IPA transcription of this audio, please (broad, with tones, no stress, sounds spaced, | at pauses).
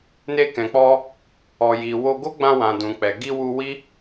n e˧ k ɛ̃˨ k͡p ɔ˧ | ɔ˨ j i˨ w o˧ ɡ o˦ ɡ͡b ã˧ w ã˨ d ũ˨ k͡p ɛ˨ ɡ i˧ w u˧ w i˦